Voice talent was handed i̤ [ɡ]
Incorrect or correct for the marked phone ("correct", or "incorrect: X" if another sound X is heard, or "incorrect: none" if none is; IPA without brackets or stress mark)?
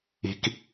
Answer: incorrect: k